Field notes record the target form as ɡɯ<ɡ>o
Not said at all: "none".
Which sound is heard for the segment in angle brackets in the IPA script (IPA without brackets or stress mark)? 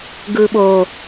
ɓ